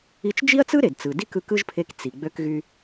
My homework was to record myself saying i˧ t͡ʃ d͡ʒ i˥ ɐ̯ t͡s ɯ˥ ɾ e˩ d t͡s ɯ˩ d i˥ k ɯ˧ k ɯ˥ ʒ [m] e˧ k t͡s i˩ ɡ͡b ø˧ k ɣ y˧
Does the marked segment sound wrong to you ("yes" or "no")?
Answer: yes